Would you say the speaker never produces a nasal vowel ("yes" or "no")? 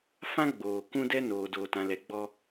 no